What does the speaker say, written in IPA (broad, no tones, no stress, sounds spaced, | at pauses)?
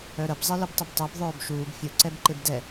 œ ɾ ə b zˤ e l ɯ b tˤ ə b tˤ ɛ b ðˤ œː b ʃ uː b fʲ u ǀ ɛ b ǃ e b d ɛ